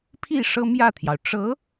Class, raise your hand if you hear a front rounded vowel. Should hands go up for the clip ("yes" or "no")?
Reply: no